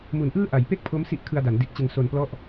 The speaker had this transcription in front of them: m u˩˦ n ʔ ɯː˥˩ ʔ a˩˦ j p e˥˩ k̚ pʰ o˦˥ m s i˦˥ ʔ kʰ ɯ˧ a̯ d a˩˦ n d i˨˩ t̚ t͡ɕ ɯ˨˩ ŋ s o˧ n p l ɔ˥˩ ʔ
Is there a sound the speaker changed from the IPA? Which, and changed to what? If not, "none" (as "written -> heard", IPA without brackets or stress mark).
none